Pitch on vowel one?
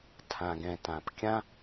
low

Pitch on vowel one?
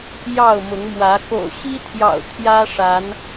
falling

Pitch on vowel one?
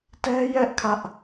high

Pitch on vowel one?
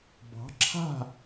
rising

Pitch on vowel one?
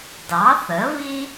rising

